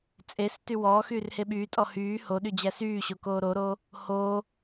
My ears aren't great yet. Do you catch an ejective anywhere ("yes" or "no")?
yes